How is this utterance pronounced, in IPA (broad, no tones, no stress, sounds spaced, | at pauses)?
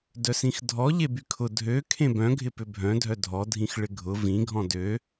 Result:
d œ s ĩ x dʱ ɔ ʎ e b y kʰ ʊ dʱ ø kʰ ẽ b œ̃ ɡʱ ɪ p ʏ bʱ œ̃ dʱ œ dʱ ɔ dʱ ĩ x ɭ ɪ ɡʱ ʊ v ĩ ɡʱ ɔ̃ d ø